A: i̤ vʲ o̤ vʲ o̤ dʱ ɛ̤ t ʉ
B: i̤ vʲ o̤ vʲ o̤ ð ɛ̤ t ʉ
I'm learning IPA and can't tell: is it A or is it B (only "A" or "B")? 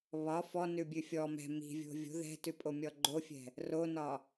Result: B